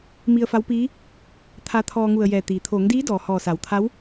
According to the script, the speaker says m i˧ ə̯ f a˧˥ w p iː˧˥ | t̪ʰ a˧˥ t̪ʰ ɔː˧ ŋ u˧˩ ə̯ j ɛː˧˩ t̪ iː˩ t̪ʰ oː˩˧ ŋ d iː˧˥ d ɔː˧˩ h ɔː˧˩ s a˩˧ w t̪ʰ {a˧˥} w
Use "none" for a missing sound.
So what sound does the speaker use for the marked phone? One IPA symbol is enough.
a˧˥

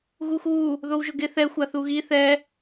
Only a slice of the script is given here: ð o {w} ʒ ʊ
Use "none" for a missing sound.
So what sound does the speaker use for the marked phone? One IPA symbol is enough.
w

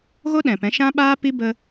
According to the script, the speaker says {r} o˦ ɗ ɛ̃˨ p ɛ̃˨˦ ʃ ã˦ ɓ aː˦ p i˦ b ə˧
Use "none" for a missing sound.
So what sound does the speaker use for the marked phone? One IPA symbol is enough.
ɣ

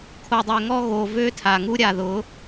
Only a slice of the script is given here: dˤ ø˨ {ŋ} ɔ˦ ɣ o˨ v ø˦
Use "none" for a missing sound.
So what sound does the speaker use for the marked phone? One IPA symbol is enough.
ŋ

